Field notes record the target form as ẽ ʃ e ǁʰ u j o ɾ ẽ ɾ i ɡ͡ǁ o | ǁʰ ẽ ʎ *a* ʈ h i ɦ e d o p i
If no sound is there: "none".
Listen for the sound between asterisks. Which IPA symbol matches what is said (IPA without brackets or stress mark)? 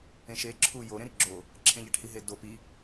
æ